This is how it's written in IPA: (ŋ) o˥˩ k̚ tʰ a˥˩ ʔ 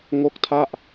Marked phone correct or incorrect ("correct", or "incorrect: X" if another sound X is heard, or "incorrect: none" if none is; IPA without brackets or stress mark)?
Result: correct